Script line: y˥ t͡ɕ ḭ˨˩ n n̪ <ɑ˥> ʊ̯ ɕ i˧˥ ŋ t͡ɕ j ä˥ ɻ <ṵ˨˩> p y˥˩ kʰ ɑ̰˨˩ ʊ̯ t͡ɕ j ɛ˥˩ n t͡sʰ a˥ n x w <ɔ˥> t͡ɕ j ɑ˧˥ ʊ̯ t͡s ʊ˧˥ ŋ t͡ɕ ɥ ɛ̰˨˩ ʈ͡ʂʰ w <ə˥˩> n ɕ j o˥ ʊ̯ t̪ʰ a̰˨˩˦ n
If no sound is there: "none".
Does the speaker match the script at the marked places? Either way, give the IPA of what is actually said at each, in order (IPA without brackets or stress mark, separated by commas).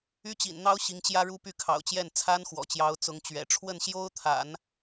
ɑ˥, u˥, ɔ̰˨˩, ə˥˩